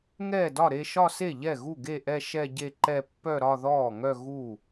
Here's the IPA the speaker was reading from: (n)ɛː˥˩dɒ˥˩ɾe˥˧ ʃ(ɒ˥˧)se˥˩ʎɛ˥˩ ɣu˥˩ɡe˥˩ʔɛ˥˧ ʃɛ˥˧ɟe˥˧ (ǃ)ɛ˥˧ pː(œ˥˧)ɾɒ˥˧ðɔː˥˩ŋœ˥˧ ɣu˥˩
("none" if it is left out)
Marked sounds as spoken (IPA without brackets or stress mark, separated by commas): ŋ, ɒ˥˧, ǃ, œ˥˧